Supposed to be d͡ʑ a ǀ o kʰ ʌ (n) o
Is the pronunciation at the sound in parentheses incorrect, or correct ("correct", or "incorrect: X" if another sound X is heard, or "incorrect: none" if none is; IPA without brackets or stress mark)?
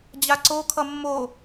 incorrect: mː